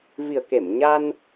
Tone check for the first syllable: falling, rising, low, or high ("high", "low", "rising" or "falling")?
low